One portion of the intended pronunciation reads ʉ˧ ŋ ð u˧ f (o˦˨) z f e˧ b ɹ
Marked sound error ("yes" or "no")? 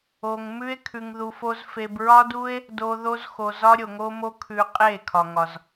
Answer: yes